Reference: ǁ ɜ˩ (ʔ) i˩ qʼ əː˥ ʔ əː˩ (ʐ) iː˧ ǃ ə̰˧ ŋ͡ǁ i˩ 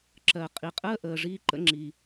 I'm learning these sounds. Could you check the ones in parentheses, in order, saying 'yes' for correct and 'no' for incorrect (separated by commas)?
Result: no, yes